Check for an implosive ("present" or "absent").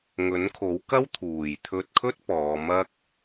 absent